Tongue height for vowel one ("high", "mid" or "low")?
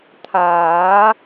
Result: low